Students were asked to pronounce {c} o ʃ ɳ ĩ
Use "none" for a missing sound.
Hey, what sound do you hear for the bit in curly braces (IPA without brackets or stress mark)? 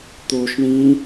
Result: t̪